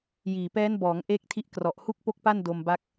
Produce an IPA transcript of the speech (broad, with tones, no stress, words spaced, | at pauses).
jiː˨˩pɛː˦˥n bɔː˩˦ŋ ʔeː˦˥k̚tʰi˦˥ʔ krɔ˨˩ʔhu˥˩k̚po˥˩k̚pa˥˩n do˧mba˦˥k̚